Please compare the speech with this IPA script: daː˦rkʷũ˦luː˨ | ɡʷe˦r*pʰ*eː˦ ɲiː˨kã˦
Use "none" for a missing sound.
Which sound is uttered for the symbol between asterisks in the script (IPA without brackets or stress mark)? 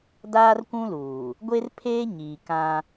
pʰ